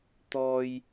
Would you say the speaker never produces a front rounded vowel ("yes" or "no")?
yes